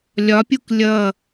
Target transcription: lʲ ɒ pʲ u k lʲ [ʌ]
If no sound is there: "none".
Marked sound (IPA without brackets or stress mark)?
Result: ʌ